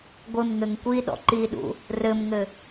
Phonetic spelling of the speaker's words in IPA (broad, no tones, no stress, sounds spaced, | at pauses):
ɡʷ ɘ m ŋ ɘ ŋ kʷ i ɗ ɔ̰ ǃ i ɗ ṵ | r ɘ m ŋ ɘ